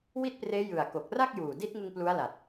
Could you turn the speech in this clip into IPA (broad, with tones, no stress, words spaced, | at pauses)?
wi˥˩t̚preː˦˥ jɯ˨˩a̯ ko˨˩k̚ra˥˩k̚juː˨˩ di˦˥t̚ŋɯ˧ŋ plu˦˥a̯la˨˩t̚